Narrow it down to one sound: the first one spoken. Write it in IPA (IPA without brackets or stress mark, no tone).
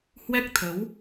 h